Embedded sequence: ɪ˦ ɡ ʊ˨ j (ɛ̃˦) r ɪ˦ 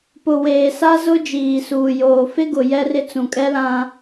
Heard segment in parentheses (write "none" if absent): ɛ˦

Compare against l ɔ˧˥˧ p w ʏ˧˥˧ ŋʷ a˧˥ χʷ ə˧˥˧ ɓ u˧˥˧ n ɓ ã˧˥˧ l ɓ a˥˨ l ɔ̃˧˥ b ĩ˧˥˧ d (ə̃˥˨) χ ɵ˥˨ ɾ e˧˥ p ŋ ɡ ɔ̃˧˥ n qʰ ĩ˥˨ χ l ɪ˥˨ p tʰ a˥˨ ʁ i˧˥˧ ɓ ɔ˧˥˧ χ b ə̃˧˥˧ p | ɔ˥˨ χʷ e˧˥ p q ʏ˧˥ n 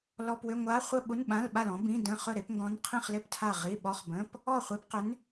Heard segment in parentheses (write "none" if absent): ə̃˧˥˧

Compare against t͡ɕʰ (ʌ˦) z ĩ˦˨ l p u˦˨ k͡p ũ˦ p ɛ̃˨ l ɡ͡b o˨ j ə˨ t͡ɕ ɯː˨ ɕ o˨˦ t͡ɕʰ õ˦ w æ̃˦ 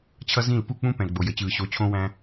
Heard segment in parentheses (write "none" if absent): ʌ˦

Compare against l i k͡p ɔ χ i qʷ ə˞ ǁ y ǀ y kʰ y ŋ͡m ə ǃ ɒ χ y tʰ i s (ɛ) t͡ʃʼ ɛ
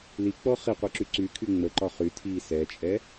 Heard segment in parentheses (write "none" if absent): ɛ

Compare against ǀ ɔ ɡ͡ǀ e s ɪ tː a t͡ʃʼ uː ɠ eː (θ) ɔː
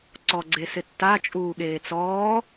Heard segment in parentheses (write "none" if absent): t͡s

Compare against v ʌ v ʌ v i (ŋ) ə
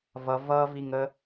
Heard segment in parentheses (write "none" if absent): ŋ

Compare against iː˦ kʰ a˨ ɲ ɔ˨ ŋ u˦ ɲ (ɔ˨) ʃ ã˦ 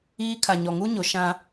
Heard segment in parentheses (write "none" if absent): o˨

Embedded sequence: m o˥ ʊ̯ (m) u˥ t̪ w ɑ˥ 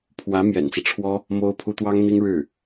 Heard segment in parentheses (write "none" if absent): pʰ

